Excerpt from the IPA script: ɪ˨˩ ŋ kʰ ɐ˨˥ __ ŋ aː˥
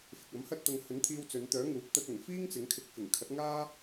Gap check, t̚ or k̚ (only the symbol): t̚